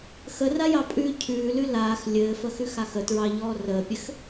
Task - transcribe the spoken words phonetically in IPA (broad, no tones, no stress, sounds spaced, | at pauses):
x ə r a j ɑ pʼ ʉː cʰ ʉː l ʉ l aː x lʲ ɘː f ə x ʉ x a x ə t ɹ ɑ ʎ ɔː r əː pʲ ɘ x